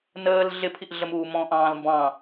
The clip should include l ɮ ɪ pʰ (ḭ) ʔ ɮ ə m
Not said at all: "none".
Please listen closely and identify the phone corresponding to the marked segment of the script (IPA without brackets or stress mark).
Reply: i